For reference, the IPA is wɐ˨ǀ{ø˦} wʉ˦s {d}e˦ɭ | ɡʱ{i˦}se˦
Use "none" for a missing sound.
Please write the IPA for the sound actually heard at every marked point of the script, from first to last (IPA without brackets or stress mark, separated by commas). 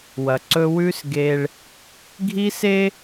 ɵ˦, ɡ, i˦